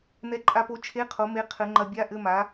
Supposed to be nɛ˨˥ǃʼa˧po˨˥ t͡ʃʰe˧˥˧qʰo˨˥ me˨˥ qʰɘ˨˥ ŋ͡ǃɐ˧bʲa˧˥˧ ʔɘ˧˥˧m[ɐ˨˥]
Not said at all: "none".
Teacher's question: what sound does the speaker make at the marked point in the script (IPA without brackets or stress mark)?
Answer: a˨˥